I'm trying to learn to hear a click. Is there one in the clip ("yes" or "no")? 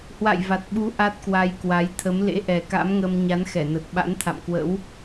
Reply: no